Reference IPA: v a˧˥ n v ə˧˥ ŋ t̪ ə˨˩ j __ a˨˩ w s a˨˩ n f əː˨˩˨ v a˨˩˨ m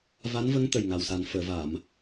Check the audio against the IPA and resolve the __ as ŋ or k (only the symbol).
ŋ